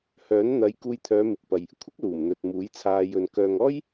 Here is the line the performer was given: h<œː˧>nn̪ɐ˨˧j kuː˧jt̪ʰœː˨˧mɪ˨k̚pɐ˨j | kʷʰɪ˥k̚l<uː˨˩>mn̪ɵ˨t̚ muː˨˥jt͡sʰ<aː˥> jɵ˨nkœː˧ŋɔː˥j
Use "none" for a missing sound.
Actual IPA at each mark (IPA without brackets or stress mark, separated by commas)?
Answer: œː˨˥, uː˨˩, aː˧